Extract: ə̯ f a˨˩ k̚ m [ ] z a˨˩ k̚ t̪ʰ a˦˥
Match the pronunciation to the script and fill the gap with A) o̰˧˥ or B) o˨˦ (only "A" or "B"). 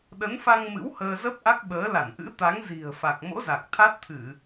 A